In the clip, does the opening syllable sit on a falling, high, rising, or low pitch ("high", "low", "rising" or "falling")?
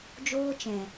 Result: high